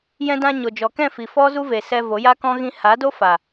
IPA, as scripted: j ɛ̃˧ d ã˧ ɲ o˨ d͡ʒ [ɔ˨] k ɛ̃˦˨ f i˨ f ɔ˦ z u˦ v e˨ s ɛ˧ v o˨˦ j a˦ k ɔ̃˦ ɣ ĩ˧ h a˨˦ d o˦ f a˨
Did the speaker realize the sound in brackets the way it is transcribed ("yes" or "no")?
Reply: yes